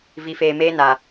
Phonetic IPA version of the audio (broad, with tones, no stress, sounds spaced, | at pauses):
v i˨ f eː˨ m eː˦ n a˨